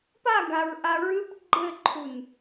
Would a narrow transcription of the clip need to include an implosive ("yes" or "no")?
no